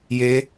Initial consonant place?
palatal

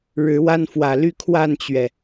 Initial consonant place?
retroflex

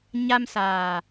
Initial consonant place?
palatal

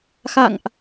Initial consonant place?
velar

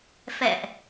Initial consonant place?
labial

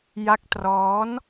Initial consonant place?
palatal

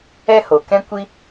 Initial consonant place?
glottal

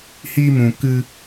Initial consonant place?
glottal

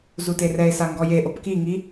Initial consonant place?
alveolar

